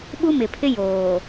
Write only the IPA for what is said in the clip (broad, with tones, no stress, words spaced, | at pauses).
ɓu˦mɪ˨pʰɪ˦ joː˨